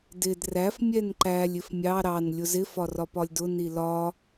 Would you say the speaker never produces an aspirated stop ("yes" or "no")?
yes